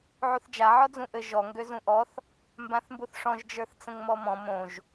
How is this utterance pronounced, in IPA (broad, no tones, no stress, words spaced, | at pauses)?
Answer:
ʕuθd͡ʒa ʕɔd͡zũʔɘ ʒɔ ŋɡøzũʔɔθ | mbãθmbuθʂɔ̃ʒ d͡ʒə˞θt͡sə̃ŋmɔmɔ̃ mõʒ